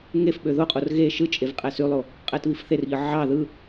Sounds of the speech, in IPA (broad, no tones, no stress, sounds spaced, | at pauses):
ŋ e f ɓ ø ð o qʼ o r ɣ e ʃ ɯ t͡ʃʼ e v qʼ æ s y lˠ o | qʼ æ t β i f θ e r ʎ ɯ ʕ ɑ ð ɯ